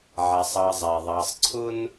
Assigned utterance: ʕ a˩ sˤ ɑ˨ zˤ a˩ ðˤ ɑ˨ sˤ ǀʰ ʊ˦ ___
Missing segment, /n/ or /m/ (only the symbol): n